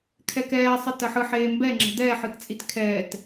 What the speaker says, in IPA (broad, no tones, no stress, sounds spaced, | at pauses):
kʰ ɛ k ɛː sˤ ɯ t ɐ ħ ɯ ħ eː m b ɛ ŋ͡ǁ ɛ̤ d̪ ɛː ħ ɯ t t͡sʼ i t kʰ ɛː t